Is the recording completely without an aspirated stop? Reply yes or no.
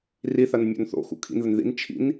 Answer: no